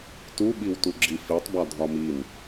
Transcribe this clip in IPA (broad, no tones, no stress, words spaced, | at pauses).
tuɓiwtu ɡ͡ǁifitˤbɒ dʱɒmin